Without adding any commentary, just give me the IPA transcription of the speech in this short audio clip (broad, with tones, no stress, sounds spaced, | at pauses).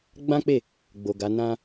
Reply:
ɡ͡b ã˦ k͡p e˦˨ | ɡ͡b o˨ ɡ a˨˦ n ã˦